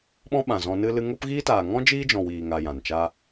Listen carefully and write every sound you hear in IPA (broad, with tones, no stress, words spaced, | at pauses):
ɓɔ̃˦ɓã˨ zɔ̃˧nɨ˦ lɨ˧ŋo˦pɣiː˦ taː˨ŋɔ̃˦ d͡ʒiː˦d͡ʒɔ̃˨wiː˨ŋa˨ jã˨nt͡ʃa˦